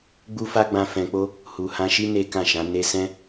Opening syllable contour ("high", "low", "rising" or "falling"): high